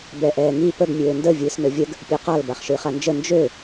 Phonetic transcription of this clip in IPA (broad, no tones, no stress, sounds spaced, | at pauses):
b ɛ ʔ ɛː ŋ i p ə ɡ mʲ øː n d ə vʲ ɨː s n ø vʲ ə ɡ | pʲ ø q a l b a χ ʃ ɨː χ a n d͡ʒ ə n d͡ʒ ø